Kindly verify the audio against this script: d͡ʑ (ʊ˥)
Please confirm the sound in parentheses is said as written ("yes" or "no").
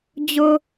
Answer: yes